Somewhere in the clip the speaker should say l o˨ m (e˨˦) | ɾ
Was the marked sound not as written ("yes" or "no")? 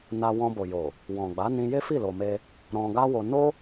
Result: yes